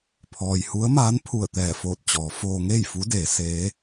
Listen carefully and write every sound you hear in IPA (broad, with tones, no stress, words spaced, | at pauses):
pʰɔː˩jhu˧˥ə̯maː˧˥npʰu˧˩ə̯ t̪ɛː˧˩foː˧˩t̚t͡ɕɔː˩˧ foː˧ ŋeː˥˨jfu˧˥ deː˩˧ seː˧˥